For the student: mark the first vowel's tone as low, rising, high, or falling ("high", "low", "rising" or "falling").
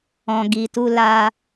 low